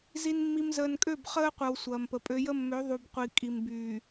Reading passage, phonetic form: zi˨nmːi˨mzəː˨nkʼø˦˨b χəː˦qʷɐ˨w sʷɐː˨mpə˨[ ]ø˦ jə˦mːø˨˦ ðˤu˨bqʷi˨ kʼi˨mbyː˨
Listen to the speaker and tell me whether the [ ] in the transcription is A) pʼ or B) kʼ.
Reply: A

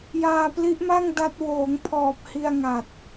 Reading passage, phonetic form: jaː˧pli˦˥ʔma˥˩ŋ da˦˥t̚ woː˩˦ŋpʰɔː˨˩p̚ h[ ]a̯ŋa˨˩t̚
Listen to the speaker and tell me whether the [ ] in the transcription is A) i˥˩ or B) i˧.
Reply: B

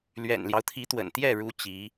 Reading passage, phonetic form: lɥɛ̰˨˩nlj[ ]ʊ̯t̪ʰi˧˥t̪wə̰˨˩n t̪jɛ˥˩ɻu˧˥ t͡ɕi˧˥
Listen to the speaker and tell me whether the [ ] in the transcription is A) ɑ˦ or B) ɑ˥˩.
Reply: A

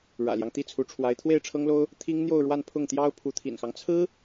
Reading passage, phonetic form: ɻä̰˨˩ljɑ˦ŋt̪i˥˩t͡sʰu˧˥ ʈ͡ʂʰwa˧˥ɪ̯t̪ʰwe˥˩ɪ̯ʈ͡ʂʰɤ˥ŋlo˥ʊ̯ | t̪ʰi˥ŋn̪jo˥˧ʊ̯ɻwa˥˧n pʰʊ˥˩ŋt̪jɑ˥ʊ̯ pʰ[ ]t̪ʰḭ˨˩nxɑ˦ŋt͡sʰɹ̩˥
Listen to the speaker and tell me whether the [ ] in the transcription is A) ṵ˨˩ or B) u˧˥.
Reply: B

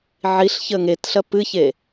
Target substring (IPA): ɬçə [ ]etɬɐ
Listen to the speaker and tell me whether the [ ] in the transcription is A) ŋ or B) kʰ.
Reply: A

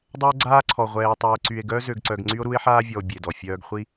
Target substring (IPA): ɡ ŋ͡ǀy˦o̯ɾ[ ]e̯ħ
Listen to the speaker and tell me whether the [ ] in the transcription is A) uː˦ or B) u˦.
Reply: B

